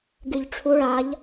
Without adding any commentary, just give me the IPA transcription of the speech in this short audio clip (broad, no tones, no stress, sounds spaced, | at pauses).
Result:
ɡ y ʎ ʈ͡ʂʰ u ɭ a ʎ